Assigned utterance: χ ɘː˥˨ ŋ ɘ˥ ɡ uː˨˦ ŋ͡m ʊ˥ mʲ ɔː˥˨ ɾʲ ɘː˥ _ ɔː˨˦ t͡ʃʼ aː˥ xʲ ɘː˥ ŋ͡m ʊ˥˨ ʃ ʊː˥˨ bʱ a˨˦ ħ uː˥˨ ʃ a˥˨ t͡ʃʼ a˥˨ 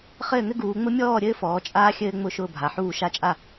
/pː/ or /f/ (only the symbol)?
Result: f